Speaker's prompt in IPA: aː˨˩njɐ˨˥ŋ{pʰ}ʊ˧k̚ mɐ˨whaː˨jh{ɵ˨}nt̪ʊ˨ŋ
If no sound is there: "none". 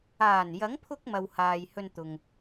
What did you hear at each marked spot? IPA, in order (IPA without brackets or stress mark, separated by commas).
pʰ, ɵ˧